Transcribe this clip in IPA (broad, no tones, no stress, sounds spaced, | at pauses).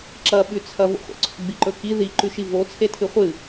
ǁ ɐ ɓ ʉ t͡sʰ ɐ v o̰ χʷ ḛ ǀ o̰ ɡ͡b i ǃ ɵ k i ð i ǃ ʉ ʃ i v o t͡sʰ e tʰ ɨ χʷ ɨ